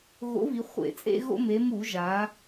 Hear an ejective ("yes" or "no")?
yes